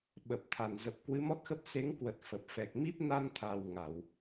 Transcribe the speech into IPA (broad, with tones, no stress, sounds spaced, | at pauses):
ɓ ə˨˩ p̚ t̪ʰ a˧˩ n z ə˨˩ p̚ k w ɨ˨˦ m ɔ˦˥ t̚ x ə˦˥ p̚ s e˨˦ ŋ k w ə˨˩ t̚ f ə˨˩ p̚ f ɛ˨˩ k̚ m i˦˥ p̚ n a˧ n t̪ʰ a˨˩ w ŋ a˧˩˨ w